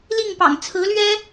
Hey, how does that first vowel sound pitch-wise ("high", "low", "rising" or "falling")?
falling